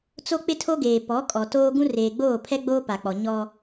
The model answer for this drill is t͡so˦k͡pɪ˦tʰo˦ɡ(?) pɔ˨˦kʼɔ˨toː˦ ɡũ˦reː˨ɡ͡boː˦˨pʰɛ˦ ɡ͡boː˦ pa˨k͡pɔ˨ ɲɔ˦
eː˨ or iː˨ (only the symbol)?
eː˨